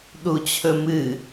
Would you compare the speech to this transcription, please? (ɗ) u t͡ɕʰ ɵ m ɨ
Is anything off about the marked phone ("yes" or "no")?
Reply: no